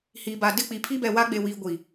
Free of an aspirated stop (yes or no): no